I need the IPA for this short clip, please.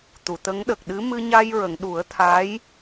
t̪ u˨˩˨ t̪ ə˧˥ ŋ ɗ ə˨˩ k̚ ɗ ɨ˧˥ m ɨ˧ ɲ a˧ j ɹ ə˨˩˨ ŋ ɗ u˨˩˦ ə̯ t̪ʰ a˧˥ j

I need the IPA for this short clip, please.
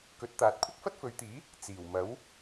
k ɵ˨˥ t̚ t̪ aː˨ t̚ kʷʰ ɐ˥ k̚ f ɐ˥ t̚ f ɵ˨˧ ɥ t̪ iː˨˥ | t͡s iː˨˩ w m ɐ˨˥ w

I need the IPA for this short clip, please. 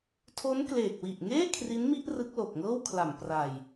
tʰ o˦˥ n k l eː˨˩ k̚ w i˨˩ ʔ ŋ eː˥˩ kʰ r i˦˥ n m i˥˩ ʔ r ɯ˦˥ k̚ l o˨˩ k̚ ŋ ɤː˥˩ w kʰ l a˨˩ m p r a˨˩ j

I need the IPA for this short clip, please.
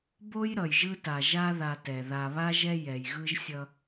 b o˦ j ɾ ʌ˨ j ʒ ɯ˦ t a˨ ʒ a˦ ð a˨ t ɛ˨ ð a˨ β a˦ ʒ ɛ˦ j ɛ˨ j ɣ ɯ˦ ʒ sʲ ʌ˦

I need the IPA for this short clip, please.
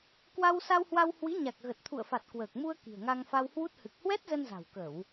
k w a˧ w s a˧ w h w a˧ w h w i˨˦ ɲ a˨˩ k̚ ɣ ə˨˩ t̚ t̪ʰ ṵ˧˨ ə̯ f a˨˩ t̚ k w əː˨˩ k̚ m u˧ ə̯ k i̤˨˩ ə̯ ŋ a˧ ŋ f a˧ w h w u˦˥ t̚ h ɨ˨˩ k̚ h w ɛ˦˥ t̚ z ə˧ n z a̤˨˩ w k ə˧˩˨ w

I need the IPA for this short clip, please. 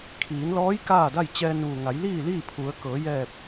kʰ iː˩˧ n l ɔː˧˥ j k aː˥˨ d a˥˨ j t͡ɕ ɛː˧ n ʋ u˩ ŋ a˩˧ j l iː˥˨ l iː˥˨ pʰ u˩˧ ə̯ k ɤː˩˧ j ɛː˧˩ p̚

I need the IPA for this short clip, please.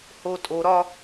h o tʼ o ɾ ɒ

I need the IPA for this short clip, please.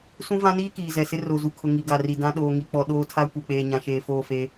s ũ˦ v ã˦ n iː˦ k iː˨ z ɛ˨ s ɪ˦ r o˨ z u˨ kʰ ʊ˨ ŋ i˨ ɡ a˨ r i˨ d ã˦ ɗ oː˨ ŋ i˨ k͡p ɔ˨ ɗ oː˦ tʰ a˦ kʷ e˨ k͡p eː˨ ɲ ã˨ ʃ eː˨ f oː˦˨ f e˦

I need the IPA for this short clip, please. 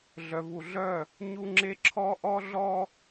ɮ œ˨ v u˨ ɮ œ˦˨ | ɲ u˦ ŋ͡ǁ e˦ ǁʰ ɔ˦ ʔ ɔ˦ ɮ ɔ˦

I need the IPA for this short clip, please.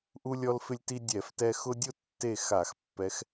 ʔ u˦ lʲ ɔ˦ l f ɪ˦ lʲ t i˦ dʲ ɛ˧˩˧ f t ɛ˦ x ʊ˦ dʲ ʊ˥˨ tː e˥˨ x a˧˩˧ x pː ɛ˨˦ x

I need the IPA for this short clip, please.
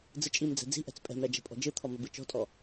d͡z ɯ t͡ʃʼ i m d͡z ɛ̤ d͡z i̤ ʔ ɛ̤ t͡s pʼ ɛ̤ m ɾ ɛ d͡ʒ ɛ̤ pʼ ɔ̤ d͡ʒ ɯ t̪ʰ ɔ m ɘ b ɯ t͡ʃ ɔ̤ tʼ ɔ

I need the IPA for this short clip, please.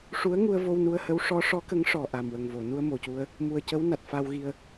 ʂ u˧˥ ə̯ ŋ u˧ ə̯ v o˧ w n u˧ ə̯ h ə˧˥ w ʂ ɔ˧˥ ʂ ɔ˧˥ k ə˧˥ ŋ ʂ ɔ˨˩ ʔ a˨˩ m w ə˨˩ ŋ v o˨˩˨ n u˧ ə̯ m o˨˩ c u˧ ə̯ | m u˨˩ ə̯ c ə˧˥ w n a˨˩ t̚ f a˧ w ɣ i˧ ə̯

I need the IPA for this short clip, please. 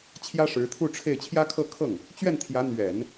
t͡ɕʰ j ä˥ ʂ ɻ̩˧˥ t̪ʰ u˥˧ ʈ͡ʂʰ e˥˩ ɪ̯ t͡ɕʰ j ä˥ kʰ ɤ˥˧ kʰ ɤ˥˩ ŋ | t͡ɕ ɥ ɛ˥˩ n t̪ʰ j ä˧˥ n̪ ɥ ɛ˨˩˦ n

